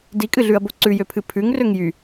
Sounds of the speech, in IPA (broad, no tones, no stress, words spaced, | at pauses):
dikʼɨɮʉɐ̯bo ǀʉjøpʰɨ pʰʉŋrøŋ jy